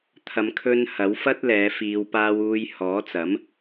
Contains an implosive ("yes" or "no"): no